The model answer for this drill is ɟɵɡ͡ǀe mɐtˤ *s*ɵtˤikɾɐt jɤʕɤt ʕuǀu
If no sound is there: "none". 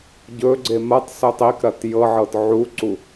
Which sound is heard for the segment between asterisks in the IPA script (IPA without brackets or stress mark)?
s